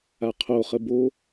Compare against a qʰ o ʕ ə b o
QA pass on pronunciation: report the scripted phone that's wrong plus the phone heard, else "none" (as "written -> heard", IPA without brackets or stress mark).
ʕ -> χ